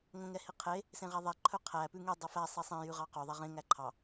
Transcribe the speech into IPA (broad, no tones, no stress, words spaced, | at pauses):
ŋõŋɛhiqʰe | sẽʁæðˤɛ ǃʰɵqʰæ pʉŋe dˤɵfæ sˤisˤẽ jʉʁɑqø ðˤɛʁẽ ŋæǃʰɑ